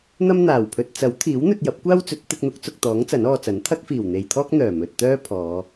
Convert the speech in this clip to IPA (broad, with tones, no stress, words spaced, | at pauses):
n̪ɐ˥mn̪aː˨˩wpʰɵ˧t̚ t͡sɐ˨˥wt̪ʰiː˨˥wn̪ɵ˧t̚ jɐ˨˥p̚kʷaː˥wt͡sɵ˨˥t̚ t̪ɪ˧k̚n̪ʊ˨˥k̚t͡sʊ˨k̚t̪ɔː˨˥ŋ t͡sɐ˨˥nɔː˧t͡sɐ˨˥n t̪ʰɐ˥k̚fiː˨˩wn̪e˨jt̪ʰɔː˥k̚ n̪œː˨˩mɵ˨t̚t̪œː˥pʰɔː˨˧